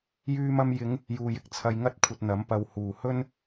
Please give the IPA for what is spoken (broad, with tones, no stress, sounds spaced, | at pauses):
j yː˧ m ɐ˧ m j ɪ˨˧ ŋ | j uː˨ j ɪ˨ k̚ t͡sʰ ɐ˧ j ŋ ɐ˥ t̚ kʷʰ ɐ˧ t̚ n̪ ɐ˨˥ m p ɐ˨ w h uː˨˩ h ɵ˥ n